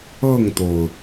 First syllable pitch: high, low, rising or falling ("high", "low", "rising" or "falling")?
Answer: falling